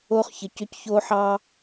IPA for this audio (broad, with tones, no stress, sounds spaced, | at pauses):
o˦ χ ç ə˨ c ʏ˦ c ç o˦ ħ ɑ˦